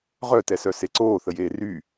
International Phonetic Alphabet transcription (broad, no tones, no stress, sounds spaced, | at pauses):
ʁ œ t ɛ s œ s e ǀ oː θ ə j eː r y